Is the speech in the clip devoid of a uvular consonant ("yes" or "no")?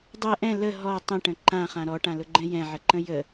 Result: no